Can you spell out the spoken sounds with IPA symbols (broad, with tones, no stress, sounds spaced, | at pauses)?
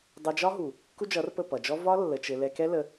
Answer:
dˤ ɛ˧ d͡ʒ ɒ˦ ɦ u˨ | k u˦ d͡ʒ ʌ˨˦ r p ə˦˨ p ʌ˨ d͡ʒ ɔ˦ v ɒ˦ lː ə˧ t͡ʃ ɘ˧ l ɛ˧ k ɛ˦ l ə˧